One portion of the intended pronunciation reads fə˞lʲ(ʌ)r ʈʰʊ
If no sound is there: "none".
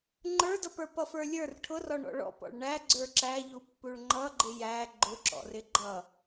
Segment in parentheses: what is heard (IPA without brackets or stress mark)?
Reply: ə˞